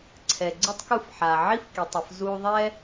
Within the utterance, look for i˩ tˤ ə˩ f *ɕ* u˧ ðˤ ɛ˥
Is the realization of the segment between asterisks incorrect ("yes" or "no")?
yes